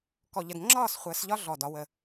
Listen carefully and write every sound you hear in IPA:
k ɔ˦ ʎ ə˦ d ŋ͡ǁ ɒː˥˨ s χʷ əː˨˦ s ʎ ɒ˦ ɮ ɔ˧˩ d ɒ˨˦ w ə˧˩

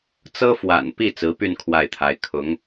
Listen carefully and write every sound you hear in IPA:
t͡s ɤ˥ f w a̰˨˩ n p i˥˩ t͡s ɹ̩˧˥ p y˥˧ n kʰ w a˥˩ ɪ̯ t̪ʰ a˧˥ ɪ̯ kʰ ʊ˧˥ ŋ

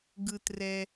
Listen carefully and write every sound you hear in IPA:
ɡ ɯ t r ɛ

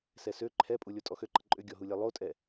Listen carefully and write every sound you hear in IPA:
s ɛ s ø ǃʰ ɛ pʼ u lʲ o tʼ ɔ x ø ǃ ə ǃʼ ʏ ɡʲ ɔ ɦ u lʲ ɛ lˠ o tʼ ɛ

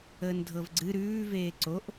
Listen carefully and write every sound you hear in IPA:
əː n dʱ ɤ v ɡ͡ǀ ɨ ɾ ʉː v eː ǀ o ʔ

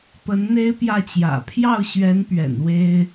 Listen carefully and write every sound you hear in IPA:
p ə˧˥ n n̪ e˥ ɪ̯ p j ä˥˩ t͡ɕ j ä̰˨˩ pʰ j ɑ˥˩ ʊ̯ ɕ ɥ ɛ˧˥ n p ɥ ɛ̰˨˩ n w e˥ ɪ̯

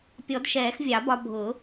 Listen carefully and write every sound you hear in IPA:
pʲ ɔ˨˩˦ d ʃ ɛː˨˩˦ x vʲ ɑ˨˩˦ b ɒ˧ bʱ ʊ˨˩˦

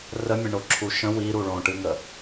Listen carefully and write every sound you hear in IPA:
r ə mʲ ə̃ ɳ o ǁʰ u ʃ ə̃ w i ɾ u ɭ õ ʈ ɨ ŋ ə

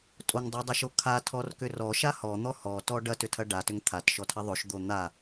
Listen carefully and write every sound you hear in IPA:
tʼ o ŋ dˤ o dˤ a ʃ o kʰ a tʰ ɔ r k ʏ r ɔ ʃ a h ɔ n̪ ɔ h ɔ t ɔ ɖ ɐ t ʏ tʰ ɐ ɖ a t ʏ ŋ t̪ʰ a t ʃ ɔ tʰ ɐ ðˤ o ʃ d̪ o n̪ a

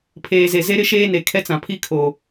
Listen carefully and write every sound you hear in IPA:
pʰ eː˨ z e˨ z e˦ ɾ ɪ˦ ʃ eː˦ n e˨ kʰ ɛ˦ t͡s ã˨ pʰ i˦ kʰ oː˨

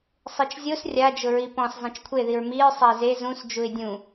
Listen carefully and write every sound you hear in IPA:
sˤ i t͡ʃ zʲ o s rʲ a d͡ʒ ʊ ɹ i p ɔ̃ s zˤ ẽ t͡ʃ kʷʰ e ð i ɹ m i ɹ sˤ a ɪ̯ z e z ũ s d͡ʒ u ɪ̯ dʲ ũ

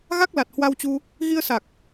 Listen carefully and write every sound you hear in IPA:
ɣ a˦˥ k̚ l a˨˩ t̚ h w a˧ w t͡ɕ u˧ | ɣ i˧ ə̯ s a˨˩ k̚

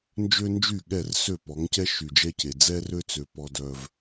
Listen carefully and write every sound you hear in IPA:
n d͡ʒ ø˦ n d͡ʒ y˦˨ ɠ ɛ˦˨ r s ø˦˨ p ɔ˨˦ ŋ c ɛ˦ ʃ y˨ d͡ʒ ɛ˦ c e˨ d͡z ɛ˦ r ø˦ t͡s ø˨ p ɔ˦ d œ˦ v

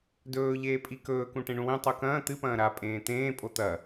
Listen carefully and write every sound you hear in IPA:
d ɵː ʎ eː pʼ i k ɵː k ũ ʈ ẽ ɳ ũ w ẽ tˤ u k ɐ̃ː t̪ ɨ p ɐ̃ː ɾ a pʼ ẽː t̪ ẽː pʼ o t̪ ɐ

